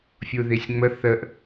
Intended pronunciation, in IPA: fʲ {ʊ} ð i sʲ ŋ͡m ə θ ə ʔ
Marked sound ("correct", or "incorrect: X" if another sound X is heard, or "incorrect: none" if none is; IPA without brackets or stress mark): incorrect: u